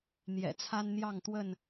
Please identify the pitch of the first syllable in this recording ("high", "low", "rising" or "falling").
low